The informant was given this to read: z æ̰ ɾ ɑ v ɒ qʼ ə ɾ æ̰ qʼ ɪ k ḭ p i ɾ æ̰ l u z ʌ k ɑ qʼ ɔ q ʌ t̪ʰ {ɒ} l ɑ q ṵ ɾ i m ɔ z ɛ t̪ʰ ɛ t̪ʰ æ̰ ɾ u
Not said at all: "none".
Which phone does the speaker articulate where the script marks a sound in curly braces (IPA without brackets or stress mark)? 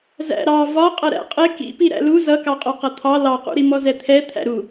ɑ